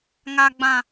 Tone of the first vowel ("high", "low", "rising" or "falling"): high